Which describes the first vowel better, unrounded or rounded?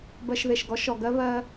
unrounded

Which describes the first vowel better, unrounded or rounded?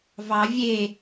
unrounded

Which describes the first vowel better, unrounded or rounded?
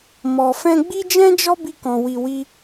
rounded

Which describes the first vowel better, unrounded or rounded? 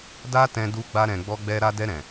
unrounded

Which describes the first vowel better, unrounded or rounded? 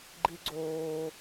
unrounded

